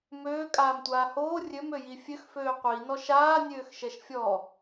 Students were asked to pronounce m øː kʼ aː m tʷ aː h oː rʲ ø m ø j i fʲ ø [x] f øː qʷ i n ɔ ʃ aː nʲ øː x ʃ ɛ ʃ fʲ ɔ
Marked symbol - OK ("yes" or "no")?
yes